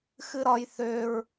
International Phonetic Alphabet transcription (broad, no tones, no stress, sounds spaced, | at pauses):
x ɨ ɾ ɒ j θ ø ɹ